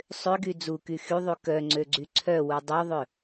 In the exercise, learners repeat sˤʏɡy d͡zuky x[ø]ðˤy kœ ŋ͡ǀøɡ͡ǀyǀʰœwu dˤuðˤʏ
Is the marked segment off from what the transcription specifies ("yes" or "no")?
yes